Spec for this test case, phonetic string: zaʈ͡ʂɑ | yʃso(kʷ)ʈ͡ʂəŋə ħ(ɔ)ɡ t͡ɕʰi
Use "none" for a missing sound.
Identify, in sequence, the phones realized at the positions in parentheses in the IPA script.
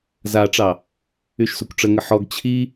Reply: kʷ, ɔ

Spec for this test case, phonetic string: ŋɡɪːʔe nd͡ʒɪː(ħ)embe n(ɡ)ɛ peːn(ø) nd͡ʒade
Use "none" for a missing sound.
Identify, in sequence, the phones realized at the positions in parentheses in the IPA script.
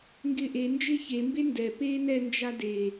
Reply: ç, d, ɛ

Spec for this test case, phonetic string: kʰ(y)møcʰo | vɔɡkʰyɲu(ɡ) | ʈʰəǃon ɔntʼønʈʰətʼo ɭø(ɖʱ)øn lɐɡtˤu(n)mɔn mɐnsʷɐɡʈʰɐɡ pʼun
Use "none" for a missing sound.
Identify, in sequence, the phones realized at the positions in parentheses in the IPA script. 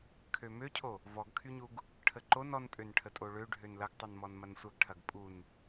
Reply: ø, ɡ, ɖʱ, n

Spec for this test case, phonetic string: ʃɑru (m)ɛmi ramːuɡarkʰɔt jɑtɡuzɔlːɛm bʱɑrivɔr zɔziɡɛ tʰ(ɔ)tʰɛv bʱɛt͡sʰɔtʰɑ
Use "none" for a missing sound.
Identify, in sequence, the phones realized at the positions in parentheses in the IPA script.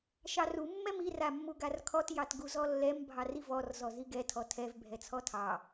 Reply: mː, ɔ

